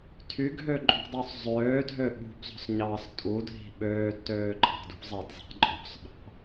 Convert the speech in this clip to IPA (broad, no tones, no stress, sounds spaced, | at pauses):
tʰ y ɡʱ ø ǃʼ ṳ dˤ y sˤ zˤ øː dʱ ø ɓ ṳ b zˤ o̤ s ɲ ɑː s tʼ u dʱ i̤ ɓ øː d t øː ǃʼ ɑ̤ d ṳ zˤ e d zˤ i̤ ǃʼ o̤ sˤ ɓ ɑ̤